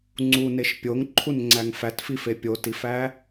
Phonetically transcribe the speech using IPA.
ŋ͡ǀ u n e ʃ pʲ o ŋ ǃʰ u n ŋ͡ǀ æ ŋ f æ t f i f e pʲ o t i f æ

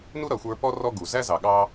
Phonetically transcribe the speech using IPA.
n u˦ ɾ ʌ˨ xʷ ə˞˧ p ɔ˦ r ɔ˦ ɡ u˨ z æ˦ z ɑ˨ ɠ ɑ˦

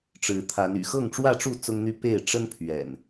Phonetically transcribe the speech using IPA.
ʈ͡ʂ ɻ̩˨˦ t̪ʰ a˨˦ n y̰˨˩ x ɤ˥˨ ŋ ʈ͡ʂ w ä˥˨ ʈ͡ʂ u˥˨ t͡s ʊ˦ ŋ n̪ y˦ p e˥˨ ɪ̯ ʈ͡ʂ ə˦ n pʰ ɥ ɛ̰˨˩ n

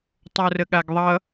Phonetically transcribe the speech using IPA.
tˤ o r ə ɠ a ɡ ðˤ ʌ

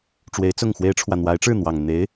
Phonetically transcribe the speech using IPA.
ʈ͡ʂ w e˧˥ ɪ̯ t͡s ʊ˥˩ ŋ x w e˥ ɪ̯ ʈ͡ʂʰ w ä˨ n̪ w a˧˥ ɪ̯ ʈ͡ʂ ɻ̩˥˩ n̪ w ɑ˨˩ ŋ n̪ e˧˥ ɪ̯

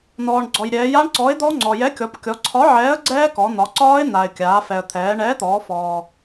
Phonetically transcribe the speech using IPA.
n̪ ɔː˩ ɳ ɡ͡ǀ ɔ˩ j ɾʲ ɛː˩˧ j a˦˥ ɳ ǀ ɔ˨˥ ɪ̯ d̪ ɔ˦˥ ŋ͡ǀ ɔ˩ j ɛ˨˥ kʲ ɔ˩˧ p kʲ ɔ˩˧ ǀʰ ɒ˨˥ ʕ ɛː˨˥ ə̯ ɡ͡ǀ ɛː˦˥ k ɔ˩˧ n̪ ɒ˩˧ ǀ ɒː˦˥ ɪ̯ n̪ a˩ ɪ̯ kʲ aː˩˧ f ɛ˩ ə̯ t̪ʰ ɛː˩˧ ɳ ɛː˨˥ t̪ ɔː˩˧ f ɔː˩

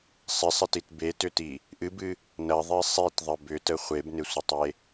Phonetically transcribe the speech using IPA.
sˤ ɪ sˤ ɪ t i t b e t ʏ t i | ʔ ɨ b ɨ | n ɐ ðˤ i sˤ i t ðˤ ə b ʏ t ə χʷ e b n ɪ sʷ ə tˤ e

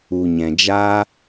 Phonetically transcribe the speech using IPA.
u˨ ɲ ɛ̃˨ d͡ʒ a˦

